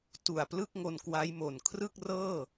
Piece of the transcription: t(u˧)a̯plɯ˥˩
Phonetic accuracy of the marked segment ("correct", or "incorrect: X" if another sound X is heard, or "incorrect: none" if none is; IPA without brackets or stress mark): incorrect: u˨˩